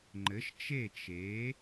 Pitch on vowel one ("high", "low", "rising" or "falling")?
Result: rising